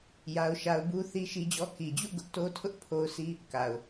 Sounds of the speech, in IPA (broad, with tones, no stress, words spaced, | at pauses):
ja˦ʊ̯ʃa˦ʊ̯ bu˦ θi˦ʃi˦d͡ʑɔ˦ ki˨d͡ʑṵ˦˨ ɡʊ˦ʔ to˦tʰʊ˦ʔ pʰo˦ʊ̯sʰi˦ | ka˨ʊ̯